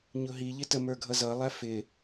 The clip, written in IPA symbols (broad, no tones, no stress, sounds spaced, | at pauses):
ɲ ʊ ɦ i ʎ ɪ t ə m ə˞ ɡʱ ʌ z ʌ lˠ æ f ɪ